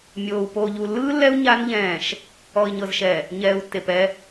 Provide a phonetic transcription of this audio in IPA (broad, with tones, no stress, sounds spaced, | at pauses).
mʲ oː˨ u̯ p oː˨ ʎ u˨ lː ɯː˦ lː ɛ˦ u̯ ɲ a˦ n ʎ ɛ̃ː˦˨ ʃ | ɔ˨ i̯ ɲ ɤ˨ z ʃ ɛ˨ | ɲ ɛː˨ u̯ tː e˨ p ɛ˦